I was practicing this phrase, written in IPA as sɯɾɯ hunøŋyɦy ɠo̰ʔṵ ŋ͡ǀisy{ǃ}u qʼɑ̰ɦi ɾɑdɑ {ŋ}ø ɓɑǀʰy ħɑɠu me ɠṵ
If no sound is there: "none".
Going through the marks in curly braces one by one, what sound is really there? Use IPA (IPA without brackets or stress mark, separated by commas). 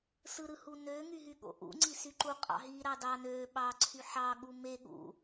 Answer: ǃ, n